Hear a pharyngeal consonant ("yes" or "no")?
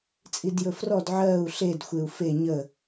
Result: yes